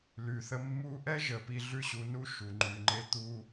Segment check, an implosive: absent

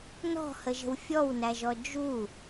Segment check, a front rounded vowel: absent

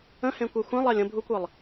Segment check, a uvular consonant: absent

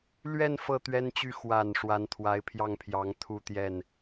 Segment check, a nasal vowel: absent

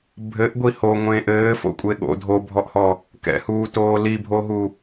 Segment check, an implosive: present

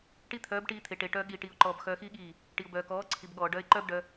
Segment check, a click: present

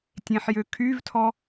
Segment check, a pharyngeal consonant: present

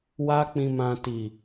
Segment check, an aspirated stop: absent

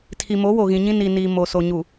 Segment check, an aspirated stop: present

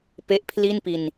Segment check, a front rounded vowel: absent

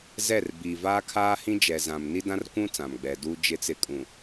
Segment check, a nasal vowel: present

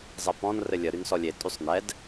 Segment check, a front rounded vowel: present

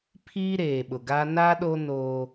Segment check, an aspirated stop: present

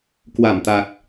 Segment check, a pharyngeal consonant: absent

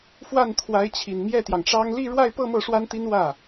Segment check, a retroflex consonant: present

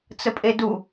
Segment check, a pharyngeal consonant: absent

